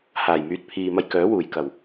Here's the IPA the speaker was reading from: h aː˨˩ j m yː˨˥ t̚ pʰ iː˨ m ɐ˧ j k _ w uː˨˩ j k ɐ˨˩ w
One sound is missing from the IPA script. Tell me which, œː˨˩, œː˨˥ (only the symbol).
œː˨˥